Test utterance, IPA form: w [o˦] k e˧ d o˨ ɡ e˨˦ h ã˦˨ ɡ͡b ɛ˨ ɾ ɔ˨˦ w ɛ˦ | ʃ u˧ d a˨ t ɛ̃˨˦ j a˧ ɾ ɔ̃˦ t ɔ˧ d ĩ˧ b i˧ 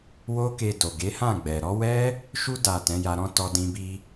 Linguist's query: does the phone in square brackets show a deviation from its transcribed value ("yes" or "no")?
no